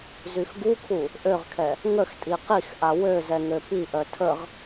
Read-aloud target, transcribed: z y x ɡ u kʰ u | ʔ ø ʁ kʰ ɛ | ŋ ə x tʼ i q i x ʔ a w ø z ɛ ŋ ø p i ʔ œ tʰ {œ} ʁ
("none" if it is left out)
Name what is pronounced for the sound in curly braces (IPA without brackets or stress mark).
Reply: ə